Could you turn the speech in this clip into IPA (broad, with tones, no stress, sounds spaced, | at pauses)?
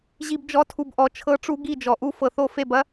ʑ i˨ b d͡ʒ ɔ˨˦ tʰ u˨ b ʔ ɔ˨ t͡ʃʰ ɤ˦ ʈ͡ʂ u˦ ɡ i˦˨ d͡ʒ ɔ˨ ʔ u˦ f ɤ˨ θ o˦˨ f e˦˨ b ɐ˦